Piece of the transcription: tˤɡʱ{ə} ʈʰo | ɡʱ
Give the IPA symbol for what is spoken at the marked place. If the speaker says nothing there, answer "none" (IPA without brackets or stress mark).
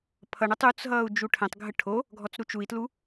ə